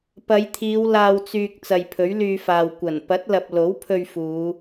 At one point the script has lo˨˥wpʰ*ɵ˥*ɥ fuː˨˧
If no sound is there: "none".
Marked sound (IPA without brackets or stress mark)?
ɵ˧